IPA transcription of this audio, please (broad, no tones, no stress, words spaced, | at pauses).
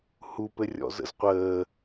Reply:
hupɘrʲɔ̰ zə̰zqʷəː